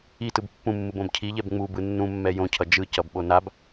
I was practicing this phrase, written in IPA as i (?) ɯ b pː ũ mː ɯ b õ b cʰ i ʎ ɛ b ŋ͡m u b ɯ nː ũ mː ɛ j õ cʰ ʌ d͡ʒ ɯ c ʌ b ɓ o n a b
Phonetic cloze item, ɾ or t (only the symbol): t